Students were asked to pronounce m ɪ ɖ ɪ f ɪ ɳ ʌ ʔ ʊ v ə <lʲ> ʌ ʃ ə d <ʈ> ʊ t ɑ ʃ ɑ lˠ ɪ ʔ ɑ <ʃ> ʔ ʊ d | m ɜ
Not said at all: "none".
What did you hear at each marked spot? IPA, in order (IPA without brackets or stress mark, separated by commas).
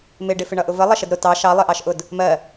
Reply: lˠ, ɾ, ʃ